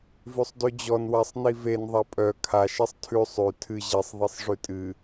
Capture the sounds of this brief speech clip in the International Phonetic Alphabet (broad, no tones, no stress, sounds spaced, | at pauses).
v ʉ sˤ d ʉ d͡ʑ ɔ n w a sˤ n i v e n ðˤ a pʼ œ kʰ a ʃ e sˤ tʰ ʉ sˤ ʉ tʰ ɨ ʑ i sˤ ðˤ i sˤ ʐ ʉ tʼ ɨ